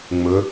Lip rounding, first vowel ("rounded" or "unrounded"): rounded